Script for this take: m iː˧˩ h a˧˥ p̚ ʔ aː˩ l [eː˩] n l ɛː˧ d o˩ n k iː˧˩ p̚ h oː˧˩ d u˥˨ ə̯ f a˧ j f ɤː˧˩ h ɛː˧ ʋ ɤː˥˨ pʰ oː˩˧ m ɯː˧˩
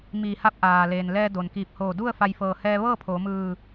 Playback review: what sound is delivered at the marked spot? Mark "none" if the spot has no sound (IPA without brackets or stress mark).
eː˩